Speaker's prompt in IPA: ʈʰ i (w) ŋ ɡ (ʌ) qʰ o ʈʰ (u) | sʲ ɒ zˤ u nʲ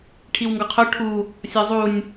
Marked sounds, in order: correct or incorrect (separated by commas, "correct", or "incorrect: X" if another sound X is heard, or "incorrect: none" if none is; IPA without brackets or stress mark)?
correct, incorrect: ɒ, correct